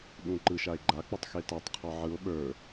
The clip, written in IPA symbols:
ɗ ũ ǃ ɯ ʃ a e̯ ɡ͡ǃ a k͡p ɔ tˤ x e t a tˤ qʰ ɔ ʕ ɯ o̯ ɓ ə˞

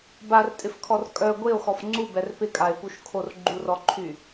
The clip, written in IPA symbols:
b a r tʼ ɪ f kʰ ɔ r kʼ œ ɡʷ e o̯ x ɔ f ŋ͡ǀ u b ɛ r p ɪ kʼ a e̯ p u ʃ kʰ o r ɡ͡ǃ u r ɔ ǃʰ y

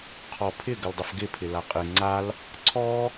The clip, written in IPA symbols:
qʰ ɔ pʰ ɪ ɡ ə l dˤ ə f ɡ ɪ pʰ ɪ l a qʼ ɪ ŋ͡ǀ a l | ǀʰ ɔ

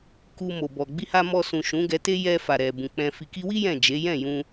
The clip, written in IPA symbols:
k u˧ m o˨ b ɔ˨ ɡ͡b i˧ h a˧ m ɔ˧ s ũ˨ ʃ ũ˨˦ ɡ ɛ˧ t e˦ j ɛ˧ f a˨ ɾ ɛ˨ b ũ˨ k͡p ɛ̃˨ f i˨ k i˧ w i˦ j ɛ̃˦˨ d͡ʒ e˨˦ j ɛ̃˦˨ j ũ˧

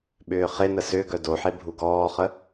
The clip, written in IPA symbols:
ɓ ʏː χ e n ə s ʏ ɡ œ d o ħ e bʱ u ɡ ɔː χ ə

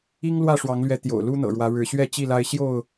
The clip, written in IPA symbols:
i˦ ŋ l w ä˥˨ ʂ w ɑ˨˦ ŋ l ɥ ɛ˨˦ t̪ j o̰˨˩ ʊ̯ l u˦ n̪ ɤ̰˨˩ ɻ w ä˨˦ ɻ ɻ̩˨˦ ɕ ɥ ɛ˥˨ t͡ɕ i˥˨ l a˦ ɪ̯ ɕ j o˥˨ ʊ̯

